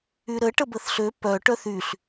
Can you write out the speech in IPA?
y ɾ ə ʈ ə b ə θ ɬ ø p œ ʈ œ θ y ɬ

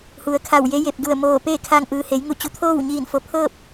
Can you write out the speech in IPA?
h u˩˧ ə̯ kʰ a˧˩ w j e˧˥ j e˧˩ p̚ d u˧˩ ə̯ m oː˧˩ p eː˥˨ kʰ a˧ ŋ ʔ ɯː˩ h e˩˧ j ŋ u˧˩ t͡ɕ u˩˧ t̪ʰ oː˥˨ w ɲ iː˧˩ n f o˩ pʰ ɤː˥˨ p̚

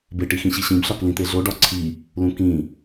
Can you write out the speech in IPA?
b e ʈ i x ĩ ɕ i ɕ ĩ b ɬ ɒ k l ĩ t̪ e ɮ o ɖ ɒ ǀʰ i | l ũ k ĩ

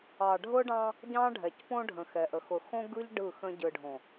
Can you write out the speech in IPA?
ɑ˨ ɖʱ ʊ˦ ɖ ɑ̃˦ | ɟ ɑ̃˦ ɖʱ ɛ˨ c p õ˦ ɖʱ ə̃˨ x ɛ˨ ʔ ə˨ x ʊ˨ x õ˦ ɡ ɯ˦ ʎ ɖ ɯ˦˨ x ə̃˦ ɟ ɯ˨ ɖʱ õ˨

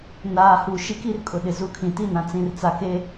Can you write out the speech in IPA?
n aː˨ h u˨ ʃ i˦ k i˦ r kʼ ʊ˨ ɗ ɪ˨ z u˨˦ kʰ ĩ˨ t i˦ n ã˨ t͡s ĩ˨ r t͡s a˨ k e˦

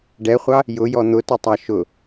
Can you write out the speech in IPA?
ɖ ɛ χʷ ɑ | j ʊ j ɔ n̪ ʊ t ʊ tˤ ɑ ʃ ʊ

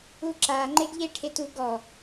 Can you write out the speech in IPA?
u ǁ a ŋ͡ǃ e ɡ ʎ e ʈʰ e t u ɡ ɔ

